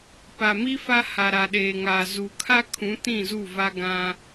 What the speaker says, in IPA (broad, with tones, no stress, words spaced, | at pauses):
pa˨mi˦ fa˦ ha˨ɾa˨ɗeː˨ŋaː˨ zu˨kʰa˦kʰũ˨˦ tĩ˦˨zu˦˨va˦ ɡã˦